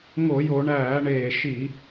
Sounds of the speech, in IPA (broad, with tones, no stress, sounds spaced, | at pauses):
ŋ o˧˩˧ j o˧˩˧ ɳ æː˧˩˧ ɳ eː˨˩ ʃ i˧˩˧